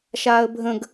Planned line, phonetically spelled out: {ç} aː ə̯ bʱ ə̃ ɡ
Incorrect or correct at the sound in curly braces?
incorrect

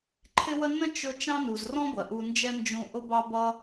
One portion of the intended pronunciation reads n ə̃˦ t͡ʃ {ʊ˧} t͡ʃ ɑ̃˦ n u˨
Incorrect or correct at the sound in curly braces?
correct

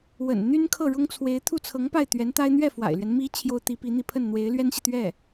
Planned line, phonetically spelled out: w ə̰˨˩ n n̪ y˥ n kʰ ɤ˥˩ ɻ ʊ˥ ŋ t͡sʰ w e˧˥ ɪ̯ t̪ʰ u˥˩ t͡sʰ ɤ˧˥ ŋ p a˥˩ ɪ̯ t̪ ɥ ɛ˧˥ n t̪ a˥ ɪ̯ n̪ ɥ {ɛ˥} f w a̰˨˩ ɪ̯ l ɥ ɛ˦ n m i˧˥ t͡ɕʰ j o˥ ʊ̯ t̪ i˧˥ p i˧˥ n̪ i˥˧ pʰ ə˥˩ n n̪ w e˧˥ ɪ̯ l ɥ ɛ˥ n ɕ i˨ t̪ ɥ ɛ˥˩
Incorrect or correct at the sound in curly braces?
incorrect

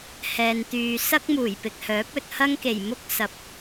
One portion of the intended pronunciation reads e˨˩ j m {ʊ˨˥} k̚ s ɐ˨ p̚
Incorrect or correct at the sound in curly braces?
incorrect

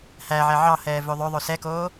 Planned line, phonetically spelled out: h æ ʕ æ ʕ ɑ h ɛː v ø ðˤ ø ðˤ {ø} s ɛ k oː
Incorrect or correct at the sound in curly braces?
correct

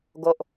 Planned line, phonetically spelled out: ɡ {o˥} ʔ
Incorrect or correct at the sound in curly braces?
correct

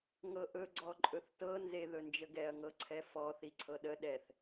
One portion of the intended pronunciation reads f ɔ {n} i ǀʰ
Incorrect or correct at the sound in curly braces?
incorrect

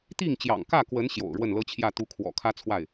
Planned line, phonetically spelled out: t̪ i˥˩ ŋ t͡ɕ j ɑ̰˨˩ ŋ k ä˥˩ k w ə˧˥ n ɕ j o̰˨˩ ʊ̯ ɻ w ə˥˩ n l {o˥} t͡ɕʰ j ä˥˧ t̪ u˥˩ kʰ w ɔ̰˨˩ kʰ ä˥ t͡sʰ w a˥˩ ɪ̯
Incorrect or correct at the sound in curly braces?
incorrect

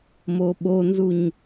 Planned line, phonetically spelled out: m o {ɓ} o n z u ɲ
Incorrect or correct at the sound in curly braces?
correct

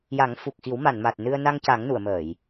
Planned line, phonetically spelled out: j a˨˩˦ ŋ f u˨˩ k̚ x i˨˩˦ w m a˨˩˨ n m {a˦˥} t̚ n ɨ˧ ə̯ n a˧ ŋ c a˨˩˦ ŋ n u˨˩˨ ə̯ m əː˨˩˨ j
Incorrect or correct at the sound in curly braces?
incorrect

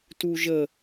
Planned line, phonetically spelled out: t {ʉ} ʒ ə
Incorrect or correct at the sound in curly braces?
incorrect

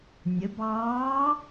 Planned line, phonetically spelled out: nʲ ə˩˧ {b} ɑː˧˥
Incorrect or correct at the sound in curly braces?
correct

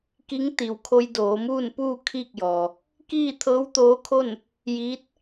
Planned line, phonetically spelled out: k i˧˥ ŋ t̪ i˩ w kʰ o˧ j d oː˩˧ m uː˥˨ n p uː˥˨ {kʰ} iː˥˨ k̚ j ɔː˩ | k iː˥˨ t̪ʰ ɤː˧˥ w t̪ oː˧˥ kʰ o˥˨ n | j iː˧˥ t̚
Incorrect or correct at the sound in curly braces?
correct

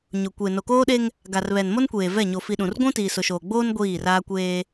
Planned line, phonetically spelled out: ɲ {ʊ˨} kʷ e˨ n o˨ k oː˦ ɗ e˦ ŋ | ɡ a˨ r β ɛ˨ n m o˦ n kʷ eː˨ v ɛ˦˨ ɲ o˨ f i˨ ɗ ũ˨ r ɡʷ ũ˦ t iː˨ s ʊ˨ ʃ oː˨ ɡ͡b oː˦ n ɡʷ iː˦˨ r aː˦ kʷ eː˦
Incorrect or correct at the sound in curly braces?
correct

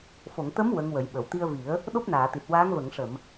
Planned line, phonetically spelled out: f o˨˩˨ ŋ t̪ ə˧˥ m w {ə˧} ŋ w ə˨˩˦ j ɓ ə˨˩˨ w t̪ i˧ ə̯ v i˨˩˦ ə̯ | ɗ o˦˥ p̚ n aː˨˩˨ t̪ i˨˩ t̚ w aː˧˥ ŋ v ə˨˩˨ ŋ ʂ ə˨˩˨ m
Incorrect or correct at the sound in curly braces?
incorrect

